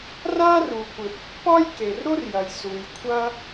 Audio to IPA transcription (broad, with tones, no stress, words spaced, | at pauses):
ra˥ ru˩kʷɘ˩ pːɒ˥jke˩rɾo˥rjɐ˩j su˩jkʷʰɐ˥